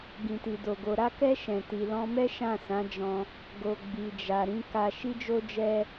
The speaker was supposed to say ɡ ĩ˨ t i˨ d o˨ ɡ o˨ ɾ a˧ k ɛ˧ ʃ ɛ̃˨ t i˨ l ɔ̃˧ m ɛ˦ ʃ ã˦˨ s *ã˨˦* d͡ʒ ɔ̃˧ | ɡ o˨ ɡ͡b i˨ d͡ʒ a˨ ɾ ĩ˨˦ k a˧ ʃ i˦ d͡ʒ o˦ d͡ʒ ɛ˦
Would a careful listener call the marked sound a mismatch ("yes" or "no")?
no